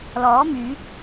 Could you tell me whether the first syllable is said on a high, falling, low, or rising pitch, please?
rising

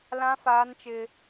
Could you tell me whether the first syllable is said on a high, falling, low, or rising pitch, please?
high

